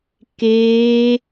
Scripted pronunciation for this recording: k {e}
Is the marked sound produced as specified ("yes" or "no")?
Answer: no